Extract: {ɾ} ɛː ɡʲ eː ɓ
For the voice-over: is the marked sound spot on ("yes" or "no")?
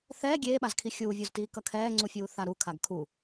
no